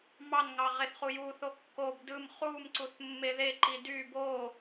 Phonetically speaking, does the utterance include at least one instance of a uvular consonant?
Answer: yes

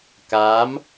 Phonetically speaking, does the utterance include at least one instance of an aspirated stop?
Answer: no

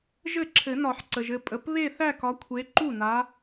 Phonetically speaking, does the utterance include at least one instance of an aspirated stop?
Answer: yes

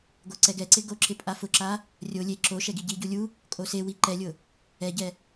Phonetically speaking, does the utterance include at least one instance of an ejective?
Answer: yes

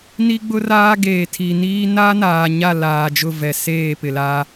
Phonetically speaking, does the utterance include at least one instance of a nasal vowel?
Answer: no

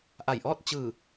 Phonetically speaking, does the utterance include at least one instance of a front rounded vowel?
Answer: no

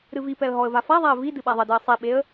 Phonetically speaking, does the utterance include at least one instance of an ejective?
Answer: no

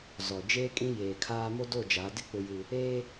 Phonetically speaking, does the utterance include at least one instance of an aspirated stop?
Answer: yes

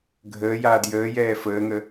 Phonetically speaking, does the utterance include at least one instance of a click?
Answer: no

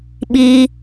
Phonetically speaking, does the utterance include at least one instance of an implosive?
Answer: yes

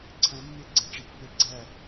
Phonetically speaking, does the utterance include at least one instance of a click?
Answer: yes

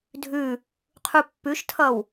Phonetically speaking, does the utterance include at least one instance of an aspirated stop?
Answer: yes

